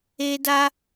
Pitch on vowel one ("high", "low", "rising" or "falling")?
high